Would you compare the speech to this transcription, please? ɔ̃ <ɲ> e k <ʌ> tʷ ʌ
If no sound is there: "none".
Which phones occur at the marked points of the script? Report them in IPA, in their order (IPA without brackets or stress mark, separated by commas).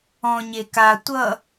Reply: ɲ, a